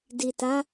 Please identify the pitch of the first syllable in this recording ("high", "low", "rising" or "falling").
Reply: low